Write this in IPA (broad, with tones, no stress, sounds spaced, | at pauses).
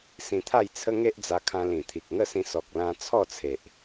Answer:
s ĩ˧ t̪ʰ a˥˧ j t͡sʰ ə˦ ŋ e˦ ʔ d͡z a˧ kʰ ã˧ l ĩ˨˩ t̪ʰ i˨ k̚ ŋ ə˥˧ s ĩ˧ s ɔ˨ k̚ l ã˧ t͡sʰ ɔ˥˧ t͡sʰ e˨ ʔ